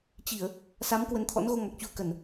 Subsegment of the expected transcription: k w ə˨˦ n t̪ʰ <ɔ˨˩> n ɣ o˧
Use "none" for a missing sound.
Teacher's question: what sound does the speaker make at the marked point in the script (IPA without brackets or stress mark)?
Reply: ɔ̰˧˥